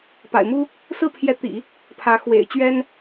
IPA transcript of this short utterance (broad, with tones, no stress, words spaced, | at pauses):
pa̰˨˩ɪ̯mu˥ | sɹ̩˥˩pʰjɛ˧˥t̪ḭ˨˩˦ | pʰä˧˥ xwḛ˨˩ɪ̯t͡ɕɥɛ˥n